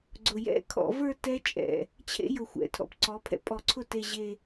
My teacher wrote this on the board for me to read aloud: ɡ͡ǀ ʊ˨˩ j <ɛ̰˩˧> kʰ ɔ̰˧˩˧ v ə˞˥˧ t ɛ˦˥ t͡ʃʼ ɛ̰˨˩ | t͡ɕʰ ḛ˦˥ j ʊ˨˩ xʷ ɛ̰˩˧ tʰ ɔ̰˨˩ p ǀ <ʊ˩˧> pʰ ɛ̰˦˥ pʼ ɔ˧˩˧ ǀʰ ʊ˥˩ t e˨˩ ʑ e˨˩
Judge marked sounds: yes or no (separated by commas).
no, no